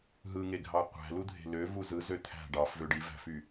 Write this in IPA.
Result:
ɦ ɯ ŋ e ɡʱ ɑ qʷ æ̤ l u dʱ e̤ l ø v u z ɯ z ø t̪ʰ æ̤ ɖ ɑ f v ø ɖ i v æ̤ f y

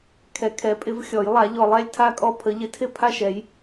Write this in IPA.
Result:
kʰ ɛ˨˩ kʰ ɛ˨˩˦ pʼ ɪ˨˩˦ v xʲ ɔ˨˩˦ j lˠ a˨˩˦ ʎ ɔ˨˩ lˠ ɛ˥˩ lʲ tʰ a˥˩ kʼ ɔ˥˩ pʰ ə˨˩˦ ʎ ɪ˨˩˦ tʰ ɪ˥˩ pʰ a˥˩ ʃ ɛ˨˩˦ j

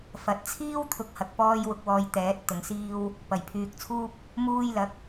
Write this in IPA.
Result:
f ɐ˨˥ t̚ t͡sʰ iː˥ w t̪ʰ ʊ˨˥ k̚ h ɐ˨ k̚ p ɔː˧ j w ʊ˧ k̚ w ɔː˧ j t̪ ɛː˨˥ t̚ t̪ ʊ˨˧ ŋ s iː˥ w | p ɐ˨˩ j pʰ yː˨ k̚ t͡sʰ uː˥ p̚ | m uː˧ j l ɐ˨˥ k̚

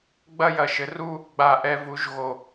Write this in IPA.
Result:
ɡ͡b ɐ˥˧ j ɐ˧˩ ʃ ɘ˩˥ r u˥˧ | ɡ͡b a˧˩ ʔ ɛ˧ v u˩˥ ʒ ɣ o˧˩

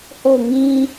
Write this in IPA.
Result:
h o˦˨ ʊ̯ ŋ ĩ˦

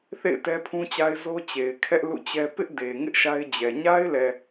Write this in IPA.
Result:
θ ḛ˦˨ ɪ̯ t ɛ˦ pʰ ũ˦ t͡ɕ a˦ ɪ̯ z o˦ t͡ɕ e˨ ɪ̯ kʰ ɛ˦ ʔ l ṵ˦˨ t͡ɕ ɛ˦ p ɪ˦ ʔ d e˨ ŋ ɪ˦ ʔ ʃ a˦ ɪ̯ d͡ʑ ɛ˨ ɲ a˦ ɪ̯ l ɛ˨

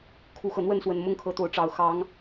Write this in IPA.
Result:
kʰ u˨˦ x ɤ˨˩ n̪ w ə˥˨ n s w ə˨˩ n m ʊ˦ ŋ kʰ ɤ˨˦ t̪ o˨˦ ʊ̯ ʈ͡ʂ ɑ˨˩ ʊ̯ x ɑ˨˦ ŋ

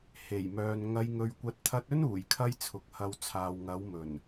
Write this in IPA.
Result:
h e˨˩ j m œː˨ n ŋ ɐ˧ j ŋ ɵ˧ ɥ kʷ ɐ˧ t̚ t̪ʰ ɐ˧ t̚ ɵ˥ n uː˨˩ j kʰ ɐ˧ j t͡sʰ ʊ˨ k̚ h ɐ˧ w t͡sʰ aː˨ w ŋ ɐ˨˥ w m ɵ˨˩ n

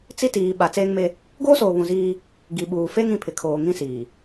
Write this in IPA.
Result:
t͡s i˦ t iː˨ ɓ a˨ t͡s eː˦ ŋ m e˦ | ɡ oː˦ s oː˨ β ũ˨ z iː˦ | ɡ i˨ ɓ uː˨ f e˦ ŋ ĩ˨ pʰ ɪ˨ kʰ oː˨ ŋ ĩ˦ s iː˨

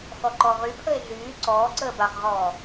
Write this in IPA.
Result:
x ɔ ǃ ɔ ʁ y pʰ ə e̯ ɮ yː ǀ ɔː ǀ əː b a χ ʁ ɔː

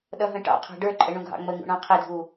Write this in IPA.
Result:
ɗ ʌ ɦ ə̃ ʈ ɑ̰ qʰ ɑ̤ ɖ ə˞ ǃʼ ə ɳ ũ ɡʱ ɑ̰ ŋ͡m ə ŋ ṵ ɳ ɑ̃ qʰ ɪ dʱ u

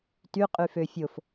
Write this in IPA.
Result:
t y qʼ y f ø fʲ o f

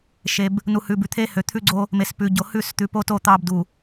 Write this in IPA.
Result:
ʃ e˨ b | n u˨ h ʉ˨ b ʉ˨ t̪ʰ e˦ h ø˨ t̪ʰ ʉ˦ ɡ͡ǀ o˦ | m e˨ s p ʉ˨ ɟ o˨ h ʉ˦˨ s t̪ ʉ˨ p o˦ t o˦˨ t̪ ɑ˦ b d u˨

